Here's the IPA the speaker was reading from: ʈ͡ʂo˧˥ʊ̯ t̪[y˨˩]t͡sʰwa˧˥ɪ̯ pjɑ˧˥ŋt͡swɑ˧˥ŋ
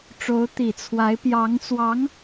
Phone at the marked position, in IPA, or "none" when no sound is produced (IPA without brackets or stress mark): i˨˩